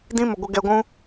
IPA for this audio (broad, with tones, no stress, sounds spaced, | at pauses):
d ĩ˦ m ə˨ ɡʷ ə˧ ɡ ɛ˧ ɡʷ ũ˦